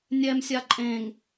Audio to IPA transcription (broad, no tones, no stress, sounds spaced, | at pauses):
nʲ ɛ m sʲ a ǃʼ ẽ ŋ